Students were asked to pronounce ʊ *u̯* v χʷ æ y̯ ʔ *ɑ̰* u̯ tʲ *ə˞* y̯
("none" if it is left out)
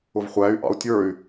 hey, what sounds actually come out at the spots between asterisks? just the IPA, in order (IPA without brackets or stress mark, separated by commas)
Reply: none, ɑ̰, ə˞